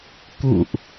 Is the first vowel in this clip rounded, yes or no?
yes